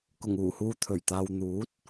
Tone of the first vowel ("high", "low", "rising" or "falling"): low